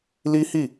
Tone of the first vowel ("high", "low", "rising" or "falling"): high